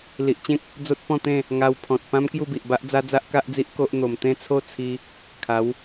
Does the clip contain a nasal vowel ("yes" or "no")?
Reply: yes